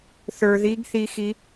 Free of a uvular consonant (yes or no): yes